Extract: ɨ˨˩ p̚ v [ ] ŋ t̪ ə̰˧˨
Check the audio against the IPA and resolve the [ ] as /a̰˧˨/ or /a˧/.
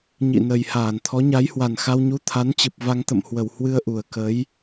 a˧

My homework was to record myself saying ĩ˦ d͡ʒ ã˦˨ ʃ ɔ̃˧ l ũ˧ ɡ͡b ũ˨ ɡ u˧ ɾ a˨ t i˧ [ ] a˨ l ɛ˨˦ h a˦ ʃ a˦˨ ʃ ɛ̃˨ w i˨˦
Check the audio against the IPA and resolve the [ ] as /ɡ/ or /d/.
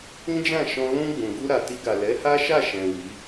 ɡ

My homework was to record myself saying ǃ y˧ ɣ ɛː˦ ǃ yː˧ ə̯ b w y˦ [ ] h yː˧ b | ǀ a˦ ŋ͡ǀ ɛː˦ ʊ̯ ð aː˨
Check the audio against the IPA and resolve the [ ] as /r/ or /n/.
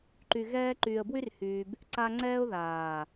r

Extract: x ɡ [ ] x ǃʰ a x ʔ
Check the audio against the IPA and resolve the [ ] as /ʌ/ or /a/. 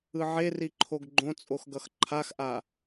ʌ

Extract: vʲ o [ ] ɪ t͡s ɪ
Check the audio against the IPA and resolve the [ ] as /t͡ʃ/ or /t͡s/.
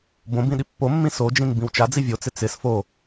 t͡s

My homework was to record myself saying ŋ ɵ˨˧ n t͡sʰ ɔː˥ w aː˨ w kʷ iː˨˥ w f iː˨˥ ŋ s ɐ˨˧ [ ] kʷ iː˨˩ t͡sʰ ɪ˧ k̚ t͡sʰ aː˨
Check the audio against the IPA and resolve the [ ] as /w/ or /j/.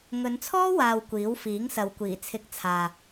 w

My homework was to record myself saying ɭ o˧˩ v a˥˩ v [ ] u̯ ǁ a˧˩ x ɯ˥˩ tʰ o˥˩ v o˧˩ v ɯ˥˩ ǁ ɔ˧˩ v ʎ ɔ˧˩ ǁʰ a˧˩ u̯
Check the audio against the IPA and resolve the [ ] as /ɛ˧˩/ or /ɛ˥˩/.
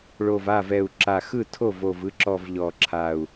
ɛ˧˩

